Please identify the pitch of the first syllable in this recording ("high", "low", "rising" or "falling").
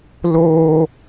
high